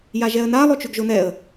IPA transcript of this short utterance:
j a ʒ ɛ ə̯ n a lˠ o t͡ʃ ʉ ɡ ʒ o n ɛ ə̯

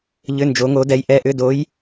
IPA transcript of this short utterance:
ʎ ʏ˩˧˩ n d͡ʒ o˩˧ ŋ o˩˧ d ɛ˩˧ j ʔ ɛ˩˧˩ ʔ ʏ˩˧˩ d o˩˧ j

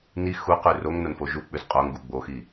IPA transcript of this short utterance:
n i x u q ʉ r o ŋ n o n f o ʒ u k͡p ʉ z qʼ o ŋ ɡ u ɡ͡b o x i

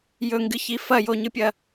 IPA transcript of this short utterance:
j ɵ ŋ ɡ ɨ ç i f ɐ j o ɲ ɨ pʲ ɐ

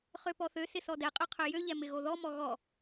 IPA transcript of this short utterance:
χ ø p ɔ θ ø s ɪ s ɔ d ɛ qʼ ø qʰ ø j ø ʎ ɛ m ɪ ɣ o ð ɔ m ɔ ɣ ɔ

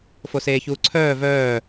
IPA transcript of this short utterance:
f o s eː ç uː ǀʰ œː v œː

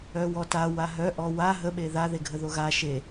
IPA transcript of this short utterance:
œ w ɔ t a w a ɦ œ ʔ ɔ w a ɦ ə ɓ e ð a ð e ɡʱ ə ð o ɣ a ʃ e

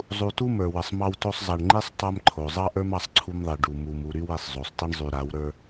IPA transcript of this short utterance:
zˤ u˨ t u˦ m ə˞˨ w ə˨ sˤ m ɑ˦ w t o˦ sˤ zˤ ɑ˨ ɳ ŋ͡ǃ i˦ sˤ tˤ a˦ m ǃʰ o˨ zˤ ɑ˦ ʔ ə˞˦ m ɑ˦ sˤ ǀʰ u˦ m ðˤ i˨ ɖ u˨ m u˨ m u˨ ɾ y˦ w i˨ sˤ zˤ o˨ sˤ t i˦ ɳ zˤ y˨ ɾ a˨˦ w ɾ ə˞˦

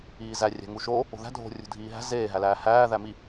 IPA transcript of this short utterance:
iː z æ rʲ æ̤ ŋ u ʃ o | o̤ ð æ̤ dʱ o̤ rʲ ṳ dʱ iː ɦ æ̤ z eː ɦ æ l æː h æː ð æ m i

